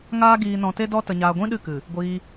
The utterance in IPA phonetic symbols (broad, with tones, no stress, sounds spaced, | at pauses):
ŋ aː˦ ɡ iː˧ n ɔ̃˧ t e˦ d ɔ˦ t ə˧ ɲ aː˧ ɡʷ ĩ˦ ɗ ɨ˦˨ k ɨ˨ | ɡʷ iː˧